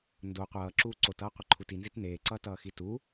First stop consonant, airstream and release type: plain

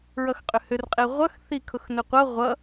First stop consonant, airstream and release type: ejective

